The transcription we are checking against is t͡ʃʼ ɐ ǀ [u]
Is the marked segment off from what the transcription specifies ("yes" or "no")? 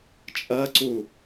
no